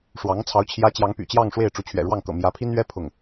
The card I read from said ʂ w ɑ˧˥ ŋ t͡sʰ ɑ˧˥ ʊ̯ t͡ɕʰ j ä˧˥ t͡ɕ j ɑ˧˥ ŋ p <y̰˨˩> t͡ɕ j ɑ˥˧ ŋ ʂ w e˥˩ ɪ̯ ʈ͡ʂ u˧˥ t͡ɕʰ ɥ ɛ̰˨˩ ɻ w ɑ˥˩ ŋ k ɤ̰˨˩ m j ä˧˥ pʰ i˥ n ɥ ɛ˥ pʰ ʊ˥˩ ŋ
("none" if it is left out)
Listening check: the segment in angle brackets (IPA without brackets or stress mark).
y̰˨˩